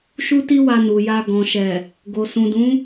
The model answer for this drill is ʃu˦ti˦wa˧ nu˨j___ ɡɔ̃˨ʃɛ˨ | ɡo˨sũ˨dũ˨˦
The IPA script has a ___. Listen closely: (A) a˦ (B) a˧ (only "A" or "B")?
B